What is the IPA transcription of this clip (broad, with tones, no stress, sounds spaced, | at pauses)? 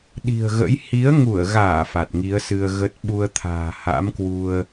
ɗ i̤˨˩ ə̯ ɣ ə̰˧˥ j h i˨˦ ə̯ ŋ u˧˩ ə̯ ɣ aː˧˩ f a˨˩ t̚ ŋ i˨˦ ə̯ s ɨ˧ ə̯ ɣ ə˦˥ t̚ ɓ u˧ ə̯ t̪ʰ a̤ː˨˩ h a̰˧˥ m k w u˧ ə̯